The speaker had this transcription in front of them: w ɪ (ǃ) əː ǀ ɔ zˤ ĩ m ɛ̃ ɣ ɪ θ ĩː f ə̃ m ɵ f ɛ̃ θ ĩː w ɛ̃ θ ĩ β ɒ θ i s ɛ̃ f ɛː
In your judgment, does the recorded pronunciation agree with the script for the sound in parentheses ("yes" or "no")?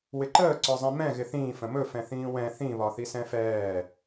yes